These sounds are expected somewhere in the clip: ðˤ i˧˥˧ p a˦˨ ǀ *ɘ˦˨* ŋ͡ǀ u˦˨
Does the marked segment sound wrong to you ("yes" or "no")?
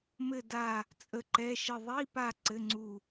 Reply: yes